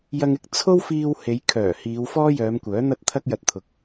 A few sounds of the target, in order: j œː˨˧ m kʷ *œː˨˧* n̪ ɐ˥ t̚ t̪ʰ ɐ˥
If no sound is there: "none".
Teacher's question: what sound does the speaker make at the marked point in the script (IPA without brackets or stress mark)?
œː˨˥